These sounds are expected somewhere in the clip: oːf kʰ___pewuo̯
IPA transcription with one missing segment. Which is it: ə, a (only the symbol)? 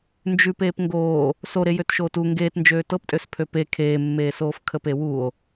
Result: ə